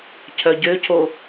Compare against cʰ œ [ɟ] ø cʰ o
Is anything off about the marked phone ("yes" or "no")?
no